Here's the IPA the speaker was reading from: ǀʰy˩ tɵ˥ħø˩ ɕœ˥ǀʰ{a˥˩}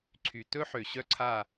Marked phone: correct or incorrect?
correct